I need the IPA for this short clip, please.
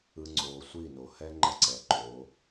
ɯ˦ŋ͡ǀoː˧ sʷi˦˨no˨ hɛ˦ŋ͡ǃʌ˧ǀɛ˨ ǃo˨˦

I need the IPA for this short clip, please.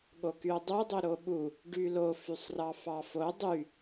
ɠokyo̯dˤø dˤøɾoɓu | ɖylo fysˤrɑfɑfo dˤy

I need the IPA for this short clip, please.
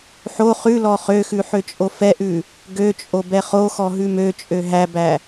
ħo χʉlɔ χøxʉ ħøt͡ʃʼofɛʔʉ | ɡøt͡ʃʼo bɛχoxɔ ɦʉmøt͡ʃʼø ɦæbæ

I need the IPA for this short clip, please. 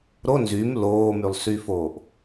ɾo nzym loːmylˠsyfoːʔ

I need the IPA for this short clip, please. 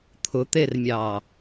t̪ʰʊt̪ermʲɑ

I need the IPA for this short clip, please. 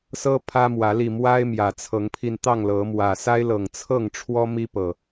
sɤ˦ pʰä˦mwä˨˦li˧ mwa˦ɪ̯ mjä˨˩t͡sʰɤ˨˦ŋpʰi˧nt̪ɑ˥˨ŋ lɤ˨˦ mwä˨˩sa˦ɪ̯lɤ˨˩ŋ t͡sʰɤ˥˨ŋʈ͡ʂʰwɔ˦ mi˦pɤ˨˩

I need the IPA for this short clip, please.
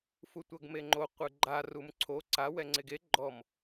futʷɤɡmeŋ͡ǃo qʷɯɡ͡ǃa rumǀʰo ǀa wɛŋ͡ǀeɡe ɡ͡ǃɔm

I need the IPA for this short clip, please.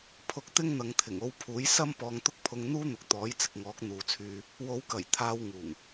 pʰʊ˧k̚ t̪ɪ˥ŋn̪ɐ˨˧ŋ t̪ʰɪ˨˩ŋo˧w pʰuː˨˥j sɐ˥m pɔː˧ŋt̪ʊ˥k̚pʰʊ˧ŋn̪uː˥ n̪ʊ˨k̚t̪ɔː˨˥j t͡sɪ˧k̚ŋɔː˨˥k̚n̪uː˨t͡sʰyː˧ | wo˨˧wkɐ˨˩j t̪ʰaː˧wŋuː˨˩ŋ

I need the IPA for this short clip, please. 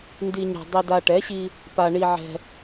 ndi˧ɲɛ̤˧ dˤi˧da˧ʈɛ˨˥ɕi˧ | pa˧ɳi˧ʕɛ̤˧

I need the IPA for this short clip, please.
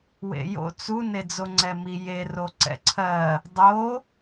wḛjo̰ t͡su ned͡zoŋ͡ǀɛmi je roǀɛ̰ǀʰɜ | dˤo

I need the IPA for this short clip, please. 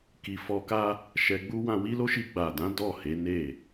ki˧ fɔ˧ka˦ | ʃɛ˧ɡ͡bu˦ wã˧wi˦ lo˦ʃi˧ ɡ͡ba˨dã˨˦ dɔ˦˨he˨˦ ne˦˨

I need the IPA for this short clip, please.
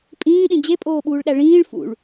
pʼĩːɗĩ d͡ʑepʼoːɓuːɭɗæ ɭĩːɭ fṵɭ

